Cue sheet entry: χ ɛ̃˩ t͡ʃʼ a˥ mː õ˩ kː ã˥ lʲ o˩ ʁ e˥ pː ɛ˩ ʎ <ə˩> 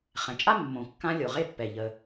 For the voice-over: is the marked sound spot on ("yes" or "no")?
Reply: yes